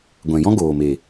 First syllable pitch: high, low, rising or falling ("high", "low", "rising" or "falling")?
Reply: low